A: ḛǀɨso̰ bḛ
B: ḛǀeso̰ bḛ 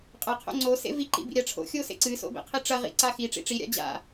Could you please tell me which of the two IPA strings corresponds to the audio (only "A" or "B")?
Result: A